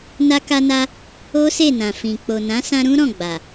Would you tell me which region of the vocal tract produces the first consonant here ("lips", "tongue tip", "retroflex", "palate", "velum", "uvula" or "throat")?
tongue tip